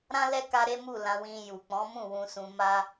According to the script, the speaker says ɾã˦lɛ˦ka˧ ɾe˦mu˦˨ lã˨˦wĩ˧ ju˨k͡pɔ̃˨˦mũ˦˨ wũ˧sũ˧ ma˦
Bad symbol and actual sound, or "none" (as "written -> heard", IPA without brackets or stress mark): none